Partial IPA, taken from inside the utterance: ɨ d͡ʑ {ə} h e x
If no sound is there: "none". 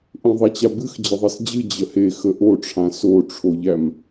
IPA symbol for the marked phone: ə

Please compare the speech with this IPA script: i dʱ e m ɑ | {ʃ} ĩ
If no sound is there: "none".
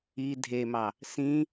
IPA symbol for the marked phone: s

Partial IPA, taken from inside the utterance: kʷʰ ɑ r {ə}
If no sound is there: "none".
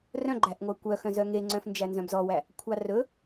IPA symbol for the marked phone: ɵ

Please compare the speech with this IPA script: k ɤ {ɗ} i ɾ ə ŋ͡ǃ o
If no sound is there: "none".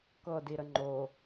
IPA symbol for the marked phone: d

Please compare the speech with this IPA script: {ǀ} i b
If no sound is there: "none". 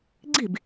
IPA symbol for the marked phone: ɡ͡ǀ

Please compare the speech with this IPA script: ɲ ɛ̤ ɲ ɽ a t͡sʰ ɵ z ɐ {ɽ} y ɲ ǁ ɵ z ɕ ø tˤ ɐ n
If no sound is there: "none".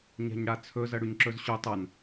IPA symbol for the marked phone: ɽ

